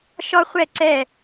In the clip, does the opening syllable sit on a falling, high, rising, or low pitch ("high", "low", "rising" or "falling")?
high